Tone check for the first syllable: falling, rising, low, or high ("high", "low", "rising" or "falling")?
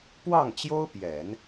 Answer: falling